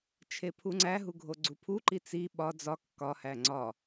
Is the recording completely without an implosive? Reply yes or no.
no